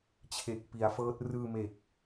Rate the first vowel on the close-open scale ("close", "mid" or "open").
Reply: mid